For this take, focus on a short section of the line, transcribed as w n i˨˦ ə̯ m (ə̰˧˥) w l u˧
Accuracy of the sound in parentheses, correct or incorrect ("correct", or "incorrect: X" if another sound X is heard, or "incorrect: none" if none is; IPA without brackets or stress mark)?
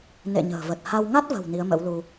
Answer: correct